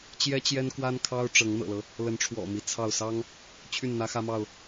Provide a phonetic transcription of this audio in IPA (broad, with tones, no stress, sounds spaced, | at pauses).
t͡ɕ j ɛ˦ t͡ɕ j ɛ˦ n k w a˦ n kʰ ɑ˦ ʊ̯ ʈ͡ʂ ɤ˨˦ ŋ n̪ ɤ̰˨˩ l ɤ˦ | l ə˨˦ n ʈ͡ʂʰ w ɔ̰˨˩ m i˨˦ t͡sʰ ɑ˥˨ ʊ̯ s ɑ˦ ŋ | t͡ɕʰ y˥˨ n n̪ ä˦ x ä˦ m ɑ˥˨ ʊ̯